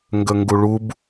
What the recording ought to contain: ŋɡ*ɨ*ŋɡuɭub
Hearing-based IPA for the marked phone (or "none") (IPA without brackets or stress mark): ə